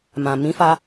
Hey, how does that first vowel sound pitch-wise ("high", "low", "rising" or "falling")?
low